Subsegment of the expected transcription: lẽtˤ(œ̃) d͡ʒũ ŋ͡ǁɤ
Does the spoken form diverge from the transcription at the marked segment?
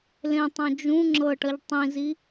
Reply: no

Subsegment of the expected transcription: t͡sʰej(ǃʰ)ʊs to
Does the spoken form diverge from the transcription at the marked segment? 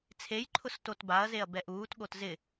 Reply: no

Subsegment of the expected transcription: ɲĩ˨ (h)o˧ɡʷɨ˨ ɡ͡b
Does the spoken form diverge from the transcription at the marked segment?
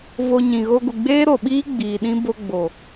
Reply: yes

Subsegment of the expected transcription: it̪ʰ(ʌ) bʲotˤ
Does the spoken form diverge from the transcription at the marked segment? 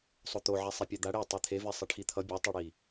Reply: no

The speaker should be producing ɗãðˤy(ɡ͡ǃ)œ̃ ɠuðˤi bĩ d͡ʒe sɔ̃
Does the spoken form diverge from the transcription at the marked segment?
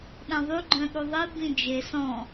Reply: no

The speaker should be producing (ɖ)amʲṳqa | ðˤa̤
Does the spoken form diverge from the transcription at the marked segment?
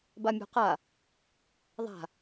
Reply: yes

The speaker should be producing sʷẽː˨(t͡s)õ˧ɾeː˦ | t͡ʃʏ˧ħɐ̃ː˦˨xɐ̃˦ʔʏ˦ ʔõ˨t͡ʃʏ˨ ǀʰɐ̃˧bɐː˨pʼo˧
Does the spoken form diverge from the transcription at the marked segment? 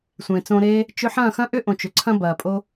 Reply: no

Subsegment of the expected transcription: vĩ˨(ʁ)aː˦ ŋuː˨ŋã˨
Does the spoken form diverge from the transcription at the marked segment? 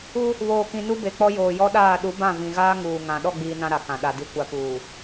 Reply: yes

